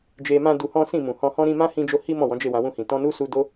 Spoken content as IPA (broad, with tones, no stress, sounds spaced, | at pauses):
d͡ʒ e˧ m ã˦ d u˧ h ɔ̃˦ s ĩ˦˨ m ũ˨ h ɔ̃˧ h ɔ̃˦ ɾ ĩ˦ m ã˦ h ĩ˧ d͡ʒ o˧ h i˦ m ɔ̃˦˨ w ɔ̃˨˦ d͡ʒ e˦˨ w ã˨˦ w ũ˧ h ĩ˨ t ɔ̃˧ n u˦ s u˧ d o˦